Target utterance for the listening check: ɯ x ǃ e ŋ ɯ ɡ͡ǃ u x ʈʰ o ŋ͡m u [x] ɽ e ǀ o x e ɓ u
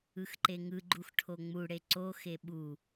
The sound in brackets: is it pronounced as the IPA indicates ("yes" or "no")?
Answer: no